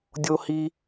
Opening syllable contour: high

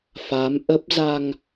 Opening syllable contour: rising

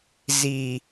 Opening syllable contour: low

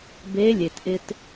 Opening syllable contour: rising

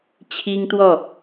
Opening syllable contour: high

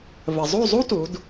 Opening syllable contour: low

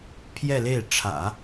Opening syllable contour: falling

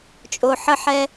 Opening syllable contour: low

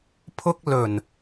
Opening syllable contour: high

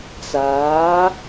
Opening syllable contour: rising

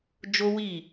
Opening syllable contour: high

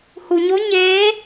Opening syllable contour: low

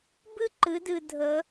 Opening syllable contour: high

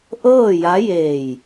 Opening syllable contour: falling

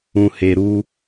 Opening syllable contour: low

